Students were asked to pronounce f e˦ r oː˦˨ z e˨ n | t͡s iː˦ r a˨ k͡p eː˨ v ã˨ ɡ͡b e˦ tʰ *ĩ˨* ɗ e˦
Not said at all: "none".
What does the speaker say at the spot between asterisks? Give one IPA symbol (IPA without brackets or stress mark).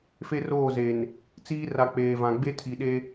i˨